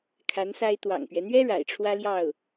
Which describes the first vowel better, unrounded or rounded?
unrounded